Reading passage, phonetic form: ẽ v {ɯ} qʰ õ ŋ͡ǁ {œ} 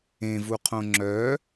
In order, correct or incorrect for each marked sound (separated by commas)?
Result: incorrect, correct